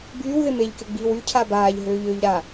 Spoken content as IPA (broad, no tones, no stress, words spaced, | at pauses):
byːwðɪ meʎkɪɡ͡biːw ycʰa baːʎɦøːʎøːʎ ɾa